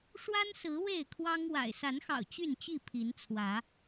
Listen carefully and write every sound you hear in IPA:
ʂ w a˦ n s ɹ̩˨˦ w e˥˨ ɪ̯ kʰ w ɑ˦ ŋ w a̰˨˩ ɪ̯ s a˨˦ n x ɑ̰˨˩ ʊ̯ t͡ɕ y˥˨ n t͡ɕ i˥˨ pʰ i˨˦ n t͡sʰ w ä˨˦

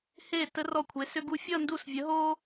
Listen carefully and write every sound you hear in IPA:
h e˧˩ t ə˧ r ɔ˧˩ kʷʰ e˩˧ s ʏ˧ ɡ u˧ fʲ ʌ˥˧ n d u˧˩ s vʲ ə˩˧ ɦ o˧

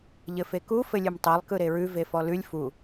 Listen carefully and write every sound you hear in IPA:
ʎ ɘ f e k u f ɘ lʲ ɯ m tˤ e lˠ k ɯ ɾ e ɹ ʉ v e f ɔ l ʉ lʲ f u

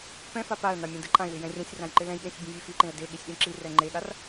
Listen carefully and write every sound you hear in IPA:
p ɛ̃ f a p a ə̯ n̪ a mʲ ɛ̃ d ɯ ǃʼ ã ɪ̯ w ɪ j ɛ̃ rʲ ɛ̃ sʲ r ã j ǃ ɪ l ɛ̃ j ɠ ẽ sʲ bʲ ẽ vʲ e f i ǃ ẽ ə̯ d e ɠ i sʲ ɗ ĩ ǁ i r ɛ ŋ͡ǃ e ɠ a r

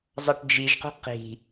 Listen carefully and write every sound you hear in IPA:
zˤ ʌ ʈ d͡ʒ i ʒ q ṳ q i̤

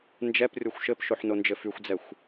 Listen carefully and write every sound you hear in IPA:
n d͡ʒ ɛ p rʲ o xʷ ʃ ɘ p ʃ o ħ n o n d͡ʒ ɘ f y xʷ d͡z ɛ xʷ

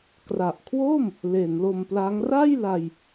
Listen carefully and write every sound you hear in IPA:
k r a˨˩ ʔ kʰ w o˥˩ m | l e˩˦ n l o˧ m p l a˦˥ ŋ r a˥˩ j l a˧ j

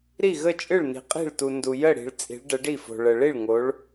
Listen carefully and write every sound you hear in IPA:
ɾ i˥˩ ɣ ə˥˩ t͡ʃʼ ɨ˥˩ ɭ n i̤˨ qʼ i̤˥˩ ɭ t u˨ n d u˨ j ə˥˩ ɽ i̤˨ ɭ t͡sʼ i̤˨˦ ɭ ɖ ə˨˦ ɖ i˥˩ f o̤˨ ɭ ə˨ ɭ i˥˩ ɭ ŋ o˨˦ ɭ

